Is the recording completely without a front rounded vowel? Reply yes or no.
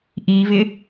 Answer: yes